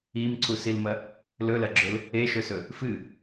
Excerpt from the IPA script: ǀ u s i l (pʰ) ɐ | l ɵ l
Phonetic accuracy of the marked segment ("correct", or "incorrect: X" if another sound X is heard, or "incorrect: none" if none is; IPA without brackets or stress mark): incorrect: m